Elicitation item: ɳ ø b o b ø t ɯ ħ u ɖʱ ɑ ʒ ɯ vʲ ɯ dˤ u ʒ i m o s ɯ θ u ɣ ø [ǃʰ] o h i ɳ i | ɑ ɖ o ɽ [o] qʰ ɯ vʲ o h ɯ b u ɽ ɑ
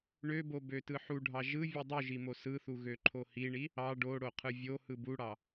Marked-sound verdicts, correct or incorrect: correct, correct

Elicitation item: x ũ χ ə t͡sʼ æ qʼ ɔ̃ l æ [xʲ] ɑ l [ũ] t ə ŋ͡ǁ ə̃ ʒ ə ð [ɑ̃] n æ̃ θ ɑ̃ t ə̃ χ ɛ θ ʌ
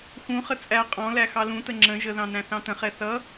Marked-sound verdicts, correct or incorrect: incorrect, correct, correct

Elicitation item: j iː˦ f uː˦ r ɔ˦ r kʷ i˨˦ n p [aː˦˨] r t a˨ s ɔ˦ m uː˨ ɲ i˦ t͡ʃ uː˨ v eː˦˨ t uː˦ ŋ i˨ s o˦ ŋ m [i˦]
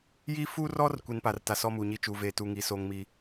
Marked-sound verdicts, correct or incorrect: incorrect, correct

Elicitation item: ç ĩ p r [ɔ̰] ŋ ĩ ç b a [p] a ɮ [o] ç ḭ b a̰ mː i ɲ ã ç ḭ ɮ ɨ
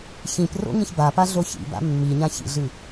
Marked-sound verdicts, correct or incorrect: incorrect, correct, correct

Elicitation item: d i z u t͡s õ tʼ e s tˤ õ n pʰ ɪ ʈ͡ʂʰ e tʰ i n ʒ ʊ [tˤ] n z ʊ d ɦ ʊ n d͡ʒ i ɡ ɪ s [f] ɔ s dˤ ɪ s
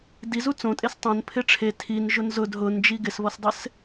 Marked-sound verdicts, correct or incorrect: incorrect, incorrect

